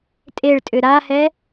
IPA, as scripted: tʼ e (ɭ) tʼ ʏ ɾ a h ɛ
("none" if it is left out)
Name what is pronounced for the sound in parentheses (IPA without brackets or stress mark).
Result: ɭ